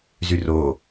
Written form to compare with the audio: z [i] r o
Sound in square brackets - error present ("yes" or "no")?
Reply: yes